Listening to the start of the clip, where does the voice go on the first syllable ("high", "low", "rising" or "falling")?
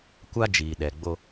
high